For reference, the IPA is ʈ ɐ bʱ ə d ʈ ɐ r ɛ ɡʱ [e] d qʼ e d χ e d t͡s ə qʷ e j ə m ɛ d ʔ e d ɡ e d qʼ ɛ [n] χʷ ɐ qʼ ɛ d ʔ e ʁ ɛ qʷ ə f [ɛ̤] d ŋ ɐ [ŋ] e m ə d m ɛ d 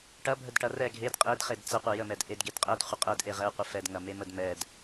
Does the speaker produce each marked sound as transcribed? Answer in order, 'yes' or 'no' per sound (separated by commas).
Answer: yes, no, no, no